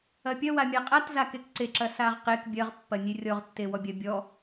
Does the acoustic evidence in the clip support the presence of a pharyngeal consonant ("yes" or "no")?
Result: no